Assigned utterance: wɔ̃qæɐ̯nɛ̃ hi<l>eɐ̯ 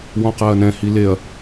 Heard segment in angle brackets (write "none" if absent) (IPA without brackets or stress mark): l